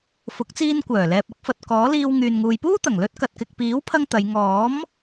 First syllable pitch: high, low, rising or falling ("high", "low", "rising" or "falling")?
rising